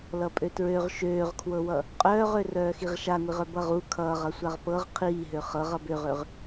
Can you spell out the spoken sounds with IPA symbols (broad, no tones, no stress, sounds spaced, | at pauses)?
l ʌ pʼ ø t ɹ ø ʁ ʃ øː ʁ kʰ w ɤ w ʌ | qʼ œː ʁ ø r œː x i ʁ ʃ a ŋʷ i ʁ œ b ʌ ʁ u kʰ ʌː ʁ ʌ sʷ a ʁ p ɤ ʁ qʰ iː ɦ ø χ ɤ ʁ ʌ b ø ʁ ø ʁ